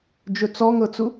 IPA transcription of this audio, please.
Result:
d͡ʒ ɵ t͡s ɔ ŋ ɤ t͡s u

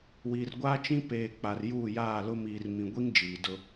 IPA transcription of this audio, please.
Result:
w iː˨ r ɡʷ aː˦ t͡ʃ ĩ˦ p eː˨ k͡p a˨ r j uː˦˨ j aː˦˨ l ʊ˦ m iː˨ r m ĩ˨ ɡʷ i˦ ŋ d͡ʒ iː˨ d ʊ˦

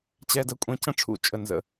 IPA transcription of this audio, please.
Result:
t͡ɕ ɛ˨ d ə˨ kʷʼ ɛ̃˨ c ə̃˦ ʈ͡ʂʰ ṵ˨ t͡ʃʼ ə˨ n z ə̰˨

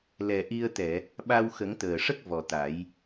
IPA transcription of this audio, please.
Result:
l ɛ˨˩ ʔ i˧ ə̯ t̪ ɛ˨˩˨ | ɓ a˧ w x ə˨˩˦ ŋ t̪ əː˨˩ ʂ ə˦˥ k̚ v ɔ˨˩ t̪ a˨˩˦ j

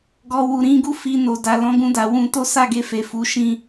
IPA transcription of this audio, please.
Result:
ɡ ɔ˨ w u˨ ɾ ĩ˧ ɡ u˦ f i˧ n o˨ d a˨ l ɔ̃˨˦ ɡ ũ˧ d a˨ w ũ˧ t o˦ s a˦˨ ɡ e˧ f e˨ f u˨˦ ʃ ĩ˧

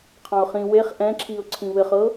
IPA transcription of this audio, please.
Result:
qʰ ɑ̃ ʊ̯ χ ĩ w e χ ʔ ɛ̃ ǁʰ i ʊ̯ ǀʰ ĩ β ɘ χ ɤ

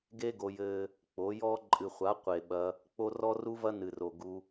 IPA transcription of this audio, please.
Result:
ɡ e˦ ɡ o˧ j ɘː˦ | k͡p o˨˦ j ɔ˦ ǃʼ ɨ˨ χʷ a˨˦ qʷ e˨ ɓ ɐ˧ | k͡p o˦ r ɔ˦ r u˦ v ɐ˦ n ɨ˨ r o˨ ɡ u˧

